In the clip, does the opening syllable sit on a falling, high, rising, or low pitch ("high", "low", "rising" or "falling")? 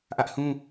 high